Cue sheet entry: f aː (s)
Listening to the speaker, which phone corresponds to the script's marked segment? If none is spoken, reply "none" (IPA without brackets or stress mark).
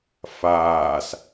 s